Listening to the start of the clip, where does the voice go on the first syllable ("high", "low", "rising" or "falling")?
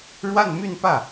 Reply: falling